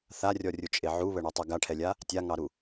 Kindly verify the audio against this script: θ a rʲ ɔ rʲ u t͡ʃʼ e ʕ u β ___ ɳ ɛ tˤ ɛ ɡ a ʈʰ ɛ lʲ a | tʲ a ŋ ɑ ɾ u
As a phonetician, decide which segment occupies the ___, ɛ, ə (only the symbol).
ə